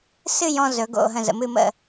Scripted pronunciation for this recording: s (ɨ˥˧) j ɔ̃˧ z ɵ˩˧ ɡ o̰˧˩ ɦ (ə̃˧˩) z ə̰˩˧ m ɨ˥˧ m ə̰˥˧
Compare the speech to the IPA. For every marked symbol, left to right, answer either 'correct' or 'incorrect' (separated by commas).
correct, correct